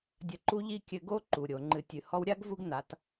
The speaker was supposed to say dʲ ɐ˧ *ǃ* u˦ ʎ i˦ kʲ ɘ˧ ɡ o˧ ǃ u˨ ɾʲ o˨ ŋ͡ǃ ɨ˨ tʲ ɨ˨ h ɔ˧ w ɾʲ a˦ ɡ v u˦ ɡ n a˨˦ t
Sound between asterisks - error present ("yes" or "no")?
no